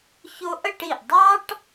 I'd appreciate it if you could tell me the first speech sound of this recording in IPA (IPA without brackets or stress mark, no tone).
ç